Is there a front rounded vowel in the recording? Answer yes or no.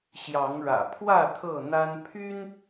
yes